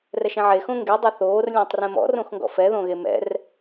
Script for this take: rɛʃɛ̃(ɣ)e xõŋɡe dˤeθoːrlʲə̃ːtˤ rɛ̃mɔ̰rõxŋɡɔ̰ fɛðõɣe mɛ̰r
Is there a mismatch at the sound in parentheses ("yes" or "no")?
yes